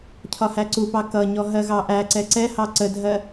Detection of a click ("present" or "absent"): present